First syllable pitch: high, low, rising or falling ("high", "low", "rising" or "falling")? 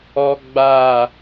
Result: high